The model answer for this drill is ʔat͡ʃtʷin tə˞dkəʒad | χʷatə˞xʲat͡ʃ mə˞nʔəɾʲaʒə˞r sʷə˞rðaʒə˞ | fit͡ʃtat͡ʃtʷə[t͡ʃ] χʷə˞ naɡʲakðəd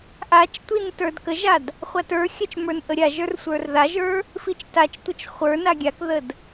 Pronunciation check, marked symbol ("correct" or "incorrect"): correct